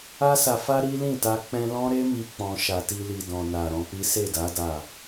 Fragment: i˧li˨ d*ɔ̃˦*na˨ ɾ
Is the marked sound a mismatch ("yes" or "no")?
yes